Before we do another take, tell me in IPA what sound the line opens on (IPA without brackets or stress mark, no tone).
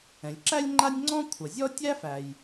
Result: ɛ̃